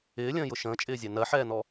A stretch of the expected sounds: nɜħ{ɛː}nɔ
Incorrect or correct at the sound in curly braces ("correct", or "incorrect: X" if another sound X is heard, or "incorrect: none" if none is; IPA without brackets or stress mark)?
correct